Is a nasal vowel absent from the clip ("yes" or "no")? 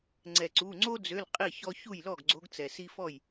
yes